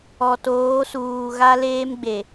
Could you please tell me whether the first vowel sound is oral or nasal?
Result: oral